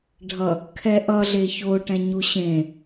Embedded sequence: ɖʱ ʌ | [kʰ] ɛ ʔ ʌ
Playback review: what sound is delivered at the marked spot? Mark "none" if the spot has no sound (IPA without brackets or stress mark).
kʰ